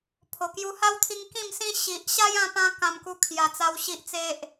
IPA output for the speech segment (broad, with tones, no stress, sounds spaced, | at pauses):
pʰ o˨˩ k j u˧ h a˦ w t̪ʰ i˧ ŋ k ĩ˥˧ m s ĩ˦ ɕ i˨ ʔ ɕ a˦ j ã˧ p ã˧ k ã˧ m k u˧ kʰ j a˨˩ t͡s a˧ w ɕ i˨ ʔ t͡s e˨ ʔ